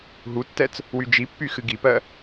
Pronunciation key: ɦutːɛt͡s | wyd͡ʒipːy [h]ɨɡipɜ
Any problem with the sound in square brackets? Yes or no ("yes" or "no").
yes